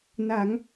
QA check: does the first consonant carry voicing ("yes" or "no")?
yes